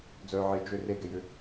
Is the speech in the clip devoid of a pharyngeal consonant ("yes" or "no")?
no